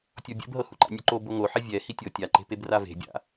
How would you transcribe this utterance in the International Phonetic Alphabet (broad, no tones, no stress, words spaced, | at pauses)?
tʲɔbʲɛ̰bɦɤ huǃa̰nʲoǃo boŋoħɛ vʲɛ hitʲɤ tʲaǃe̤peb rave̤bʲa̰